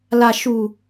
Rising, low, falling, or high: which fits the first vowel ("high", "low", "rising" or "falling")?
low